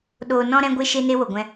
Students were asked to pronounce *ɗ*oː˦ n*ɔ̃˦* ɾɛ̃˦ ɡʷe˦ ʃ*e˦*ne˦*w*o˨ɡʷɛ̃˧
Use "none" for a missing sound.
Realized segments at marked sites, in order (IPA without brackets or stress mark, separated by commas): ɗ, ɔ̃˦, e˦, w